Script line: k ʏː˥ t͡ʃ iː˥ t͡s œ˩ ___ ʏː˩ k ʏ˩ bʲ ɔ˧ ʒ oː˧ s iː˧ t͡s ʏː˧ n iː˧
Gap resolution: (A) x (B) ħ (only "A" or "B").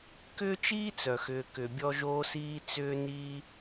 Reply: A